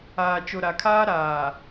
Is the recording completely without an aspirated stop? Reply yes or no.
no